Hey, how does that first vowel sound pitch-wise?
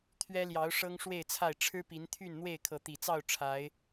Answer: high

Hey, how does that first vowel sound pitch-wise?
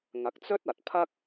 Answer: rising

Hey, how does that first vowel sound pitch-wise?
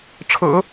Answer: low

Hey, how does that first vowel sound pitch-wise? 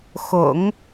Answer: low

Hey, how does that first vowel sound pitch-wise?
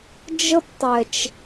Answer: high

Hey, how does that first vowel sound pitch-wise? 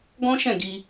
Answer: high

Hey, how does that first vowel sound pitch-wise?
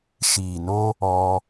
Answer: low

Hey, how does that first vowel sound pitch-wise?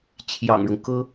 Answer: low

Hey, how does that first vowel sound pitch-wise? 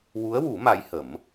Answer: rising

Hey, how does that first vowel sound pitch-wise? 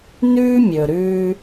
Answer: high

